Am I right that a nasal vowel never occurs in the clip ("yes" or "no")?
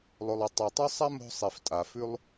yes